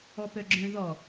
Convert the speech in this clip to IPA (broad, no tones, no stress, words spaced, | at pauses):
ɔpœɡ͡ǁœ̃ ðɔ